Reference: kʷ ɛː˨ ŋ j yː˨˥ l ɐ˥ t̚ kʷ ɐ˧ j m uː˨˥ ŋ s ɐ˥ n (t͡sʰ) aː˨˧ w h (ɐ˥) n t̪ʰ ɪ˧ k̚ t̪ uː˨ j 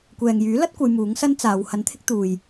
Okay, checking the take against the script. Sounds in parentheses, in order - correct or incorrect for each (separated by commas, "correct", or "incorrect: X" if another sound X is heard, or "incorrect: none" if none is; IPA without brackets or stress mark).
incorrect: t͡s, incorrect: ɐ˨˥